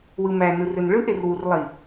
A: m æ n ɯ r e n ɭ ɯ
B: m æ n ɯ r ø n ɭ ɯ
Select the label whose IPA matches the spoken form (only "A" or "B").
B